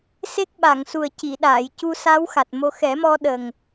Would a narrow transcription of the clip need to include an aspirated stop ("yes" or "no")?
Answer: no